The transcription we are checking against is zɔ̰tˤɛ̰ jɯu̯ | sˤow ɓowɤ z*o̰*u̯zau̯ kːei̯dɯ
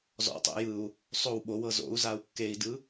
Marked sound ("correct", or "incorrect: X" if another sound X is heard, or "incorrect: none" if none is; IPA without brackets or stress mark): correct